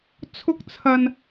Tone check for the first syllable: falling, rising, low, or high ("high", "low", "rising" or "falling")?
high